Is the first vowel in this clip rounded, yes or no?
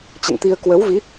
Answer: no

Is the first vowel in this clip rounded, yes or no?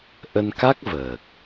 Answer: no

